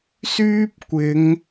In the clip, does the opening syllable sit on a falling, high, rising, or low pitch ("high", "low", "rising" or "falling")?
high